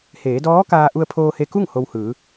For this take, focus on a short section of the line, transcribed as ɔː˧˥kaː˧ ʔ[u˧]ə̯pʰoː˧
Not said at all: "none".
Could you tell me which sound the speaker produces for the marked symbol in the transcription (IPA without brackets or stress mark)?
u˧